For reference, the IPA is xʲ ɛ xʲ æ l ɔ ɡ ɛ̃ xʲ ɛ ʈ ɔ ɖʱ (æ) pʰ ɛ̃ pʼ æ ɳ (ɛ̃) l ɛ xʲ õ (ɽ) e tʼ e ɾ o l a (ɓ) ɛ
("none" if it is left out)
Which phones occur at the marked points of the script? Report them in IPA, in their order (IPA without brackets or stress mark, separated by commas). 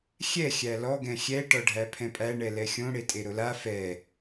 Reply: æ, ɛ, ɽ, f